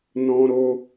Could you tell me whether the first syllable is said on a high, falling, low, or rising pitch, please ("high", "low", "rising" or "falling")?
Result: high